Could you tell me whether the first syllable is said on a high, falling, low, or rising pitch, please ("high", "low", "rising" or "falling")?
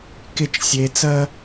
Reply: falling